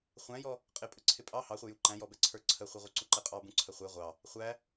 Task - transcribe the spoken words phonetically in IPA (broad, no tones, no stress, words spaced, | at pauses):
χʷæ̃jɔ | qʼɪpʼə ǀʰɪpʼɑ hɑχʷɪju ǃæ̃jɔbɛ ǀʰə˞ǀʰəχʷɛ ʁʷə˞ǀuǃɛqʼɑ bũǀʰəχʷɛ ʁʷɑ | χʷæ